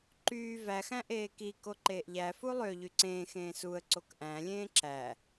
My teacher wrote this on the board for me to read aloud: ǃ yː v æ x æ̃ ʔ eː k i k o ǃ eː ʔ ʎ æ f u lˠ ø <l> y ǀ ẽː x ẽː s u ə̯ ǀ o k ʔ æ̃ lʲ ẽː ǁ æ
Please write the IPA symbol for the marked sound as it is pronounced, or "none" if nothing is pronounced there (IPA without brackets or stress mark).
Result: ʎ